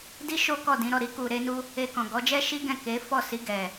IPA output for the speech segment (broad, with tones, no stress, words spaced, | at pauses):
di˦ʃo˦ kɔ˦˨dĩ˨˦ɾɔ˦˨ ɾi˧ku˨ɾe˧nu˧ | e˧kɔ̃˨ ɡɔ˨˦d͡ʒɛ˦ ʃi˦ɡɛ̃˦˨ ke˨˦ fɔ˦˨si˧ ɡɛ˨